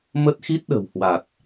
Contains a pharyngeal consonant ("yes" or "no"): no